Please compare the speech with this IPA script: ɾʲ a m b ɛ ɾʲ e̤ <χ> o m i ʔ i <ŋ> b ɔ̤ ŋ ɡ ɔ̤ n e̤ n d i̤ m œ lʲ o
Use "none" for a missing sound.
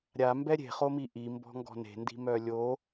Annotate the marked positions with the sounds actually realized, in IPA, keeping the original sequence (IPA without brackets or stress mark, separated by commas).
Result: χ, m